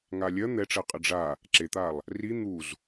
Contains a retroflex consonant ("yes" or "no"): yes